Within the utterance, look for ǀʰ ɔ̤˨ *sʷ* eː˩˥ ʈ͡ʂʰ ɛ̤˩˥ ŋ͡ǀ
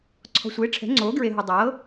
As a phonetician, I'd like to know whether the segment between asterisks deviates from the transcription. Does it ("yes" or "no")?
no